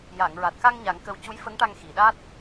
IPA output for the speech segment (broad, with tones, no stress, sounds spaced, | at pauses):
j a˨˩˨ ŋ ɹ a˨˩ t̚ k a˧ ŋ ɲ a˨˩˦ ŋ k ə˧ w c u˧˥ j f ə˧˥ ŋ ʈ a˧ ŋ x i˨˩˨ ɗ a˦˥ t̚